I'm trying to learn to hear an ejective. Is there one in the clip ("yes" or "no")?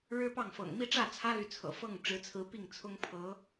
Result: no